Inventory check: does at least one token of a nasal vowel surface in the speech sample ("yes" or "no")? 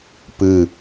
no